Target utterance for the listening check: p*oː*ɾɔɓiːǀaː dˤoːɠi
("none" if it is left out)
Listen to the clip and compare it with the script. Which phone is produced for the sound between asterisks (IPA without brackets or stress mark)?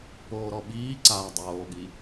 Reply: oː